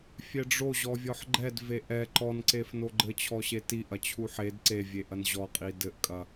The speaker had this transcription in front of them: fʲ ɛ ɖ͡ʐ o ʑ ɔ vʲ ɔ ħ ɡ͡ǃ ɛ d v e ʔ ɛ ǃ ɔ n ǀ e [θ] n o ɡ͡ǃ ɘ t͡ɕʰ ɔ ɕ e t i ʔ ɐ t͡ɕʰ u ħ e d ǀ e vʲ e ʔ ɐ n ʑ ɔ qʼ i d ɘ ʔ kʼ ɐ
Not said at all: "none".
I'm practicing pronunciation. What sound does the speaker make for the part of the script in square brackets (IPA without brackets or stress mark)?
f